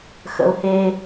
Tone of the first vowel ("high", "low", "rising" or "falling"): low